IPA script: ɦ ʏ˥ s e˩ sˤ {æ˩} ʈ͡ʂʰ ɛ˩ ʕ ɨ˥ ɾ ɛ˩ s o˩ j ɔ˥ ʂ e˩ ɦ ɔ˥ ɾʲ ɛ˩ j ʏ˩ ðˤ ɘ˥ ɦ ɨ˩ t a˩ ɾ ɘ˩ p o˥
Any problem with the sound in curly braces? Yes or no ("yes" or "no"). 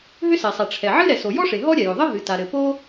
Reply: yes